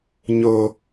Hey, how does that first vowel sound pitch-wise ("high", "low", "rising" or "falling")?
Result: high